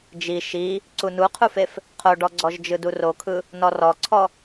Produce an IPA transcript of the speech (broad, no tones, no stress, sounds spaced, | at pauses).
d͡ʒ i ʃ i | ǀ u n u qʰ u f e f | qʰ o ɖ ɔ ɡ͡ǀ ɔ ʒ d͡ʒ ɯ d u r o kʰ ɯ | n ɔ r ɔ ǀʰ ɔ